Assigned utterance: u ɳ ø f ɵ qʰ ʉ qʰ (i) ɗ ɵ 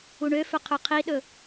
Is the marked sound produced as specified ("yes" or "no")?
yes